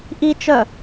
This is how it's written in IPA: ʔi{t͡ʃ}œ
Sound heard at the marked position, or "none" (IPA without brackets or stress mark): t͡ʃ